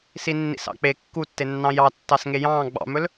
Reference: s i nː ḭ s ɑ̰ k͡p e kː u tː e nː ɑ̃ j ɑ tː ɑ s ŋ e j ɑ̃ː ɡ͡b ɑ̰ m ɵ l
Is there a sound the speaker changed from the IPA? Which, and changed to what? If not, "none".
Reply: none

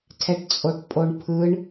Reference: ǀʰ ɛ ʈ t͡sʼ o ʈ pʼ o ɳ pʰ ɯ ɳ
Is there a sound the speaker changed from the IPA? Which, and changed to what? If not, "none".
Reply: ǀʰ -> tʰ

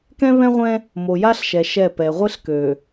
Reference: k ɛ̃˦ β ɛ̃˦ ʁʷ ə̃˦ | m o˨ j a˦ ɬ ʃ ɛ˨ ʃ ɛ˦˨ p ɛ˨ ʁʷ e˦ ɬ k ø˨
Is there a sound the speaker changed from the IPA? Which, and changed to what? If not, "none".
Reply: ə̃˦ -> ɛ̃˦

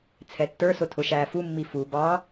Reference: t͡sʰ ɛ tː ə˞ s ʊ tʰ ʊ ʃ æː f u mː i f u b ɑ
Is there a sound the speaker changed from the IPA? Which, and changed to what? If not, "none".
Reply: none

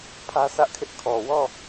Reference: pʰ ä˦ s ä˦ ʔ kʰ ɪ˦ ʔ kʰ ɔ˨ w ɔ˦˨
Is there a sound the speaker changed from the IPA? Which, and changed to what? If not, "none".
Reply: none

